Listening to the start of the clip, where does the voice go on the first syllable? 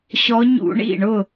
rising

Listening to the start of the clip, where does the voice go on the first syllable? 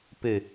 low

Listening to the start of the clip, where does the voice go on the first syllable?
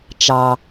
low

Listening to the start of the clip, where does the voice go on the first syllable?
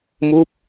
falling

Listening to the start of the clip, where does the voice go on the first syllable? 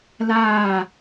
falling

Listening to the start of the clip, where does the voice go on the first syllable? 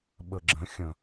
low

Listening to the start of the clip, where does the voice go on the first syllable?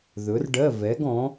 rising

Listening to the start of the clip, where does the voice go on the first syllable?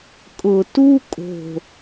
low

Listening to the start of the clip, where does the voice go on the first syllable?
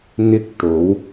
high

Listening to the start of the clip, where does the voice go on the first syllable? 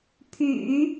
low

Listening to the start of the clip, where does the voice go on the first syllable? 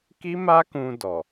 high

